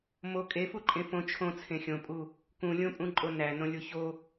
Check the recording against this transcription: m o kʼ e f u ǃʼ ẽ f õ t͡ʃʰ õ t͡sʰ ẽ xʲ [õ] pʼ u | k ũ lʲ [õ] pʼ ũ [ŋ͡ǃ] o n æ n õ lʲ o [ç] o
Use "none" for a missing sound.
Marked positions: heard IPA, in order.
õ, õ, ǃʼ, ç

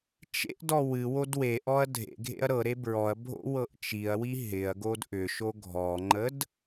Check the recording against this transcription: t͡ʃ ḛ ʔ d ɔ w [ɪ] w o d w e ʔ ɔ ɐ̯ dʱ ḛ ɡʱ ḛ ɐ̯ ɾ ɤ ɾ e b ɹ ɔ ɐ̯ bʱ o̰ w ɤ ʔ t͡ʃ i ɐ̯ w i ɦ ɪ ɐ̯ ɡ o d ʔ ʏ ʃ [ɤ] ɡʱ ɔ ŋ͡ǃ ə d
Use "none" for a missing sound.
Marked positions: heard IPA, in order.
ɨ, o

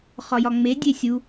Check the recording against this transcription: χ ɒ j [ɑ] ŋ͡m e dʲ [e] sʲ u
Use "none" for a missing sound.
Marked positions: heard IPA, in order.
ɒ, e

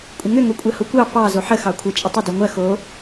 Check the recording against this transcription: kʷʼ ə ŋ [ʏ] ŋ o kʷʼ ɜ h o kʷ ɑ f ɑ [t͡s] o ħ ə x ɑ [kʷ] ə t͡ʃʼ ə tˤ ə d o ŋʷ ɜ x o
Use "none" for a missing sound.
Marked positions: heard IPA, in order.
ʏ, z, kʷʰ

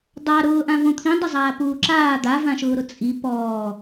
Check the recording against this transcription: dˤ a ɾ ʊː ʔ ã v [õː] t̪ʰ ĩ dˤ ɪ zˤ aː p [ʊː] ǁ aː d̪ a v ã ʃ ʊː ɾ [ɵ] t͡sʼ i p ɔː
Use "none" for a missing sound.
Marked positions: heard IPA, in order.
õ, uː, ʊ

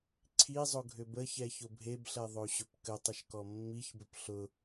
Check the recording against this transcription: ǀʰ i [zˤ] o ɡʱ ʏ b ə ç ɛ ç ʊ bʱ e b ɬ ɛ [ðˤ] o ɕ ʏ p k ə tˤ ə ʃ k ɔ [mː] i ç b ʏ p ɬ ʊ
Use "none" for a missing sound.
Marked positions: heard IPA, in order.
zˤ, ðˤ, mː

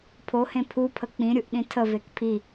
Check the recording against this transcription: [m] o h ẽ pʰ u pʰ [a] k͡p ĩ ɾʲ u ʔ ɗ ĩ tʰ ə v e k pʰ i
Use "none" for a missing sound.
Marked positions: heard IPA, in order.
pʰ, ə

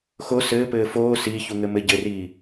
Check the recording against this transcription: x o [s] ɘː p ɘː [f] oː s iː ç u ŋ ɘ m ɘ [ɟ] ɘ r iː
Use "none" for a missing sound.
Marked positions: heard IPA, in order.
s, f, ɟ

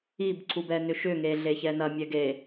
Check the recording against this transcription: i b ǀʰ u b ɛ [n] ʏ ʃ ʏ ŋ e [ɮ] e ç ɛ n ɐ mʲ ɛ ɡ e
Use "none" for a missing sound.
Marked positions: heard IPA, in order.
n, ɮ

